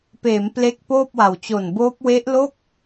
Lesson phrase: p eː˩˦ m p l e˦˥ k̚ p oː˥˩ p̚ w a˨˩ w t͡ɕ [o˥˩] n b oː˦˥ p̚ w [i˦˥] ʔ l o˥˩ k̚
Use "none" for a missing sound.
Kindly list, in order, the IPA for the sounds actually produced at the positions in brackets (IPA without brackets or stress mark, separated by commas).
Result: o˨˩, e˦˥